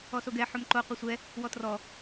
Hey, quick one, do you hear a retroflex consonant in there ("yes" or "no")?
no